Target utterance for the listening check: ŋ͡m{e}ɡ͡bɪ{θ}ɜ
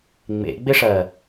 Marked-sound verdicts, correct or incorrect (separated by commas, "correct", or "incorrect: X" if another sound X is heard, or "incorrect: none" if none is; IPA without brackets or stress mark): incorrect: ḛ, incorrect: ʂ